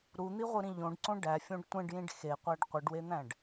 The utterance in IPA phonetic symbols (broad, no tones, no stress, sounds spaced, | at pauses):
ɾ u n̪ i ʁʷ ɯ ɾ ĩ ʎ õ ɖ ǀ õ ɖ æ fʲ õ ɖ tʷ ẽ ɖ j ĩ ɖ x e qʷ æ ɖ qʷ ɯ ɖ w e n̪ æ̃ ɖ